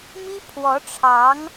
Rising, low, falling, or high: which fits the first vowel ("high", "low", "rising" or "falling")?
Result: high